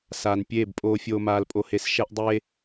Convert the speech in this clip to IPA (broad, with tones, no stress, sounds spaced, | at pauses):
s aː˨ n pʲ eː˦˨ b pʼ oː˦ fʲ oː˦ m aː˦ l pʼ o˦ h e˦ s ʃ ɛ˦ ʔ dˤ e˦